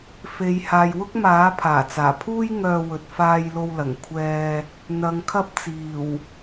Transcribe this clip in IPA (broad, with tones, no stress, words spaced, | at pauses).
fe˨˧jhaː˨j wʊ˥k̚maː˨˥ pʰaː˨˩t͡saː˨˩pʰuː˥j ŋœː˧wɵ˨t̚ faː˧jlo˧wlɐ˨˩ŋ kʷʰɛː˧ | n̪ɐ˨˧ŋkʰɐ˥p̚t͡siː˨˩w